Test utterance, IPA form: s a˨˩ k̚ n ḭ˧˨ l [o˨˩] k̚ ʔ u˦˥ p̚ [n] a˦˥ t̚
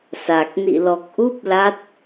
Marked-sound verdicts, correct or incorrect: incorrect, incorrect

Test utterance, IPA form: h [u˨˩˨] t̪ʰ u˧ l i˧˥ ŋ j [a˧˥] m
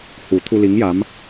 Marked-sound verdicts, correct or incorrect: incorrect, correct

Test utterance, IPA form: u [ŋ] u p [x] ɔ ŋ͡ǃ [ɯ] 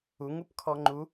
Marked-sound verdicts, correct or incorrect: correct, incorrect, incorrect

